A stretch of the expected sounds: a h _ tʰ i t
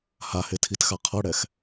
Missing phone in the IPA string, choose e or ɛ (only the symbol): e